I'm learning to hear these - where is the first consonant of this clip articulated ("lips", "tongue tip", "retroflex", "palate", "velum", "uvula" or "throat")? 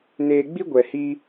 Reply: tongue tip